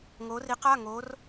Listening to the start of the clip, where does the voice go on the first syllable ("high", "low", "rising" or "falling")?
rising